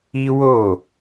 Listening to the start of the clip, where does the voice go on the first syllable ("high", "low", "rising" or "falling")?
high